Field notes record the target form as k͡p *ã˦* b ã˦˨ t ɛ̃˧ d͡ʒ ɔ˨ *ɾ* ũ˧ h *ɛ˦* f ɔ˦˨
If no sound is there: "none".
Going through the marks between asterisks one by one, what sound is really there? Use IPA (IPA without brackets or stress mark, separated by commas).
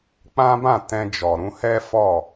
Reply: ã˦, ɾ, ɛ˦